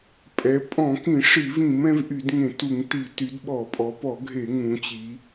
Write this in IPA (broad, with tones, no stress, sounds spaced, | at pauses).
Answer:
pʼ ɛ˩˧ pʼ ɔ̃˧˩˧ k ĩ˧˩˧ ʂ i˧˩˧ v ĩ˧˩˧ m ɛ̃˩˧ v ʔ y˧˩˧ d ŋ ẽ˧˩˧ t u˧˩˧ ŋ t i˧˩˧ t y˩˧ d ɓ ɔ˧˩˧ pʼ ɔ˩˧ p ɔ˧˩˧ ɡʱ e˧˩˧ ŋ ũ˩˧ t͡ɕ i˩˧